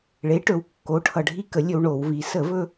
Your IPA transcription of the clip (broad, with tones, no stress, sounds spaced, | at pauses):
ɭ e˩˥ ʈ ɵ˩˧ w kː o˩˥ ʈʰ ʌ˨˩ ɖʱ i˧ k ə˩˧ lʲ ɵ˧ w ɳ o˧˩˧ w v i˩˧ s ə˧˩˧ v ɵ˧